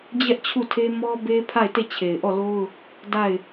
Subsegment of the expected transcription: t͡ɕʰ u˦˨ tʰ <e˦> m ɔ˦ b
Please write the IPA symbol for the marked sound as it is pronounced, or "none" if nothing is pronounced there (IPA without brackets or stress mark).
e˦